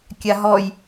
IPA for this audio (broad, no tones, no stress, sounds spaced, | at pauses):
kʲ a ɦ ɔ j